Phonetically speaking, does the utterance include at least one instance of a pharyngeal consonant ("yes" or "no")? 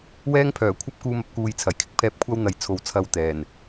no